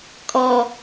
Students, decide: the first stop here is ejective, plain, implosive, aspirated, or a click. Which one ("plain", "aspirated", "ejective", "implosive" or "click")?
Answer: ejective